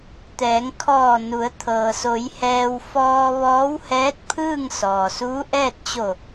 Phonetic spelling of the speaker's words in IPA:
t̪ ɛː˩˧ ŋ kʰ ɔː˧˩ n u˩˧ ə̯ t̪ʰ ɤː˩ s o˩˧ j h ɛː˧ w f ɔː˧ ʋ ɔː˧˥ w h ɛː˧˥ t̚ pʰ ɯː˥˨ ŋ s ɔː˩ s uː˧˥ ʔ ɛː˥˨ t̚ t͡ɕ o˧˩

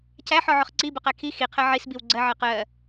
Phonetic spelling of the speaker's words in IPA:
cʰ æ ħ ɔ ʕ ʊ χ ǀ i b ʊ q æ kʰ i x i qʰ ɜ ʕ i s b i w ɡ͡ǀ ɜ ʕ ɜ q ɜ

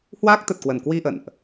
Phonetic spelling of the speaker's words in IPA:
h w aː˦˥ k̚ t̪ ə˨˩ t̚ k w ə˧˩ n k w i˧ ʔ ə̰˧˨ n ʔ

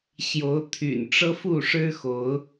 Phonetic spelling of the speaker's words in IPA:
ɕ j o˨˦ ʊ̯ t̪ʰ y̰˨˩ n ʈ͡ʂ ɤ˦ f u˥˨ ʂ ɻ̩˦ x o˨˦ ʊ̯

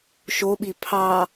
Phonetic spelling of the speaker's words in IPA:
ʃ o ɓ i pʰ ɑ

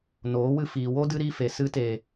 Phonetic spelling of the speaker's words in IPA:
n oː˨˦ w ɨ˧ f iː˨ w o˦ d ɨ˦ ɾ iː˦ f e˨ s ɨ˧ t e˨

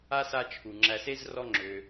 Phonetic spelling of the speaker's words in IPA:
a˥ s a˦ t͡ʃʰ u˩ ŋ͡ǁ æ˨ s e˥ z r ɔ˦ ŋ͡ǁ ø˩

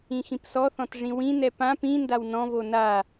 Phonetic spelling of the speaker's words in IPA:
ĩ x ĩ p s ɔ θ ɔ̃ t ʐ ĩ w ĩ n ɛ p ã p ĩ n d a w n ɔ̃ v o n a

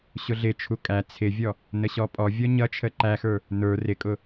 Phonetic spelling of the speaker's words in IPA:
ɕ ʊ ɮ ɪ t͡ʃʰ u kʼ æ t͡sʰ ɪ vʲ ɔ | n ə ɕ ɔ pʼ ɔ vʲ ɔ ɲ ʌ t͡ʃʰ ə ǃ æ x ə˞ | n ə˞ r ɪ kʼ ʊ

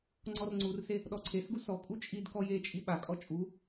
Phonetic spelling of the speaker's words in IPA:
ŋ͡ǀ ɔ r ŋ͡ǀ u r s e | ɗ ɔ ǀʰ e s ɡ u s ɔ kʼ u t͡ʃʼ i d k ɔ j e t͡ʃʼ i ɓ a kʼ ɔ t͡ʃʼ u

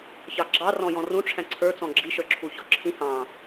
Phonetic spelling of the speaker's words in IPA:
ç ɑ ɡ͡ǁ ɑ r ɔ̃ j ɔ̃ r ũ ʈ͡ʂʰ æ̃ ǀʰ ə˞ t͡s ɔ̃ ɡ͡ǁ i ʃ ə˞ ǁʰ u ç ɔ ǁʰ ĩ h ɑ̃

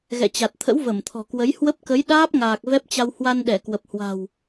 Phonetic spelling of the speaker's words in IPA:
ɣ ɛ̰˧˨ t͡ɕ a˨˩ t̚ t̪ʰ ə̰˧˥ w v ə˧˩ m t̪ʰ ɔ̤˨˩ k w ə˨˦ j h w ə˦˥ p̚ k ə˨˦ j ɗ aː˦˥ p̚ ŋ aː˨˩ k̚ v ɛ˦˥ p̚ t͡ɕ a˧ w h w a˧ n ɗ ɛ˧˩ k w ə˨˩ p̚ h w a̤˨˩ w

